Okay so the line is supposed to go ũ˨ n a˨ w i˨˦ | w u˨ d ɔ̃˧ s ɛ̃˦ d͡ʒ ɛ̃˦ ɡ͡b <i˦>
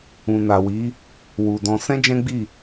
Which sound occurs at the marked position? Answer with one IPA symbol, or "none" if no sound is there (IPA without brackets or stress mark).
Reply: i˦˨